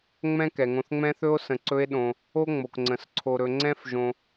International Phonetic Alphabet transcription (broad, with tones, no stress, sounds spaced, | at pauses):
ŋ͡m ɛ̃˥ k ɛ˩ ŋ õ˨ θ ŋ͡m ɛ̃˦ θ ɵ˦ o̯ s ə̃˨ ǀ ɵ˦ e̯ ɗ õ˨ | o˥ ŋ͡m o˩ k ŋ͡ǀ ə̃˩ s ǀʰ o˨ ɾ ɵ˨ ŋ͡ǀ ɛ̃˥ f ʒ õ˨